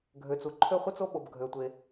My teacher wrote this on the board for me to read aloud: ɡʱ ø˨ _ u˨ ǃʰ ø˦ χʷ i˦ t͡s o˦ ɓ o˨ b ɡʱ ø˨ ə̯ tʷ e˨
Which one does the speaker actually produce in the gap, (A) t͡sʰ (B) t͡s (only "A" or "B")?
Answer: B